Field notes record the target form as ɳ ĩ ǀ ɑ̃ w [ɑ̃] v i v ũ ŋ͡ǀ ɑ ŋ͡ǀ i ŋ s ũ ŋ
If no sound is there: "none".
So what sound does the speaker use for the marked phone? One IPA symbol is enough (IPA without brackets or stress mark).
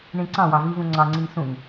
ɑ